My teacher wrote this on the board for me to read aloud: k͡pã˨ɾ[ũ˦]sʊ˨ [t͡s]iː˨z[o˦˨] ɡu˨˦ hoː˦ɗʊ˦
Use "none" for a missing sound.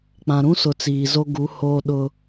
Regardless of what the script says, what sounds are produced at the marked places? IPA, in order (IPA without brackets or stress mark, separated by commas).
ũ˦, t͡s, o˦